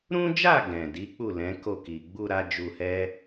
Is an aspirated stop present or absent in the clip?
absent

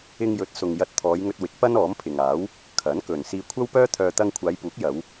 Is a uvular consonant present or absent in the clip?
absent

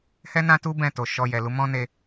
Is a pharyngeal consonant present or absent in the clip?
absent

